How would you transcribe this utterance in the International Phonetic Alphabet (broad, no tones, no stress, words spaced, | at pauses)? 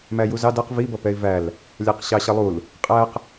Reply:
mæjuzɑ dʌq vi bʌpɛɪ̯væl | lʲæqɕɑɕʌlˠul | qʼæq